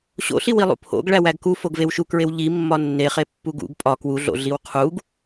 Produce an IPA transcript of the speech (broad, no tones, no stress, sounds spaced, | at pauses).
ɕ o̰ ɬ i w i lˠ ṵ pʰ o̰ ɡ ɭ æ w æ ɡ k u f o ɡ v e w ʃ u k ɹ e w ʎ i mː ɒ nː e χ e pː u ɡ ṵ ɡ pʼ ɒ k w u ɮ o̰ ɮ i w qʰ u ɡ